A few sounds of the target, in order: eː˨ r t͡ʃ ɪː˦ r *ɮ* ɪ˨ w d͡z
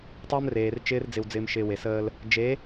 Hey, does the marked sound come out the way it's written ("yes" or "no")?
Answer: no